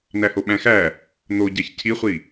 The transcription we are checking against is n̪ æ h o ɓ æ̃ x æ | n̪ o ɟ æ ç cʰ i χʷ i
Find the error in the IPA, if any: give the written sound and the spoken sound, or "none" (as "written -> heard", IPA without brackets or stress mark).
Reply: none